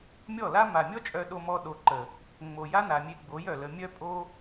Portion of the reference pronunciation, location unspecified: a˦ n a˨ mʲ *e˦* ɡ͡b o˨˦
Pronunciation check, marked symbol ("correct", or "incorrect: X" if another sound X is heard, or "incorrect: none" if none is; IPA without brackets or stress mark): incorrect: e˧